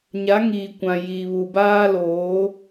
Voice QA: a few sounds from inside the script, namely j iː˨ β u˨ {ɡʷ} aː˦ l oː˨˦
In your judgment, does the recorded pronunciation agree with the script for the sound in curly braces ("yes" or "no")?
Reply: no